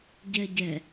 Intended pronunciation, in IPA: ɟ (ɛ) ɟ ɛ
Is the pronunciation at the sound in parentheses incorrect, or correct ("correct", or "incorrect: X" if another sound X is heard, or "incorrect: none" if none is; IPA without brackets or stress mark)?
correct